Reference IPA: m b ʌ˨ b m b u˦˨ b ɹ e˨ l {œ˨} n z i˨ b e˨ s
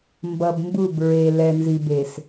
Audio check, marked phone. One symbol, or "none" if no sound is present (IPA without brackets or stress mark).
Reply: ɛ˨